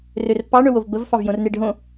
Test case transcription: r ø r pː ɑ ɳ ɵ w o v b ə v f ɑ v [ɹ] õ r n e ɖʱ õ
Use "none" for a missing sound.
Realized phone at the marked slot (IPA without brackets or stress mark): j